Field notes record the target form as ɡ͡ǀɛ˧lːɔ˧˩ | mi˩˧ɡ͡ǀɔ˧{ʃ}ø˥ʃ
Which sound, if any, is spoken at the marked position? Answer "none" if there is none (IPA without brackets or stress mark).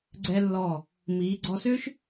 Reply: s